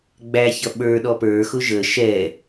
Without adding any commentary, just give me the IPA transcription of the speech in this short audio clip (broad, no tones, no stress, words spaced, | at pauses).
ɡ͡bæçʌ ɓə˞ɗɔ pə˞xʊ ʒə ʃɛ